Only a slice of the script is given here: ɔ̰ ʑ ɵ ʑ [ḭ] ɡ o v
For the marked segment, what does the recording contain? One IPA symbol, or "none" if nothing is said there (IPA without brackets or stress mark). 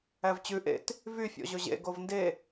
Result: ḛ